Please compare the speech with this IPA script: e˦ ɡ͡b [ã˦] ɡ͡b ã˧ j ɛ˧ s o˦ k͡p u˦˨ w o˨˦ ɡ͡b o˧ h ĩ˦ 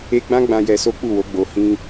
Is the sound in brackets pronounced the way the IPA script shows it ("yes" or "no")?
yes